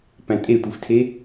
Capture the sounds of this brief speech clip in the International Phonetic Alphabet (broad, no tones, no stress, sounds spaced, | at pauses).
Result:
p æ̃ tʼ e tʷ i f tʰ e